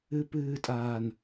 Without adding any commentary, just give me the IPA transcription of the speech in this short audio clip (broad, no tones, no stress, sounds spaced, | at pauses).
ɨ p ɨː tʼ aː n